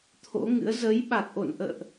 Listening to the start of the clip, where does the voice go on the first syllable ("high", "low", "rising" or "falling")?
rising